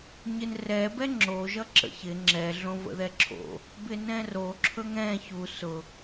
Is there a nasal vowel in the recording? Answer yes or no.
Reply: yes